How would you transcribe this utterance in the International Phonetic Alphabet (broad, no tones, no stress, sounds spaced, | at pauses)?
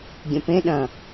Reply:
ɡʲ ə̃ p ẽ ɗ ɐ̃